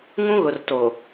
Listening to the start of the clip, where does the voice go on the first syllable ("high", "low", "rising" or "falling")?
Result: high